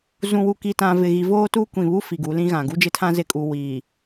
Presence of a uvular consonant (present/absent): absent